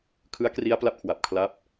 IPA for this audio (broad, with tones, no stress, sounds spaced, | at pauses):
kʰ ɯ˦˥ a̯ k r i˦˥ a̯ p l a˦˥ p̚ kʰ w a˨˩ p̚ kʰ l a˦˥ p̚